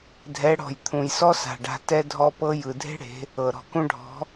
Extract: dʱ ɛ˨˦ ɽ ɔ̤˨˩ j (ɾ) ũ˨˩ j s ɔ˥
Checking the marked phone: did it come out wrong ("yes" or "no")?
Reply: yes